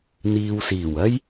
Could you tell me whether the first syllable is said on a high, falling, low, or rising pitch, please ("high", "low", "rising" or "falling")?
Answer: low